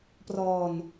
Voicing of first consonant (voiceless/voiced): voiceless